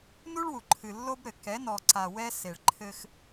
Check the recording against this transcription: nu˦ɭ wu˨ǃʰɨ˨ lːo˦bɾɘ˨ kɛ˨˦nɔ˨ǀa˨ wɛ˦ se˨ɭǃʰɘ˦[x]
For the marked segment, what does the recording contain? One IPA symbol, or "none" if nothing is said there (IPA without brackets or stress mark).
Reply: x